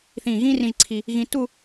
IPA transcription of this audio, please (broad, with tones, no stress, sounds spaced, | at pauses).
θ ĩː˧˩ ɣ ĩː˥ r ĩ˧ ʒ ǀʰ i˧ | ɣ ĩː˧ t u˥˧